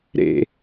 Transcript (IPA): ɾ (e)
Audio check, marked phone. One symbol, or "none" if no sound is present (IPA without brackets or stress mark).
ḛ